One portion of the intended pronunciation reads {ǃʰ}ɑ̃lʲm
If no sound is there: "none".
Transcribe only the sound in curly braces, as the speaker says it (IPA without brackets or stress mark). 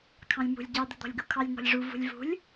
kʰ